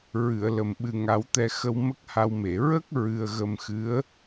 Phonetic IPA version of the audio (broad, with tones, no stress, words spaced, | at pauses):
ɹɨ˨˩˨ə̯lə˨˩m ɓɨ˨˩ŋa˨˩˦wt̪ɛ˧ xə˧wmə˦˥k̚ha˧wme˨˩˨ ɹə˦˥k̚ ɹɨ˧ə̯ɣə˧mxɨ˧˥ə̯